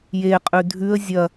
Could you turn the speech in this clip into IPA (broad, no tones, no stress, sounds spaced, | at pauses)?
j e qʼ ʉ dʱ ʉ ə̯ zʲ ɐ